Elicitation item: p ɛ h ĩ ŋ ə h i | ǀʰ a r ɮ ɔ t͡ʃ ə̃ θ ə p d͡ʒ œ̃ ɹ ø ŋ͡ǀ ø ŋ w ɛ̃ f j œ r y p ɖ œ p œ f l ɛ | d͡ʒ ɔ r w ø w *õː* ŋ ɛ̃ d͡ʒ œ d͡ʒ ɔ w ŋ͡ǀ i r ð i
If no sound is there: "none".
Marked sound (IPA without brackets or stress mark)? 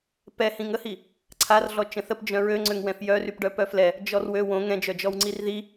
õ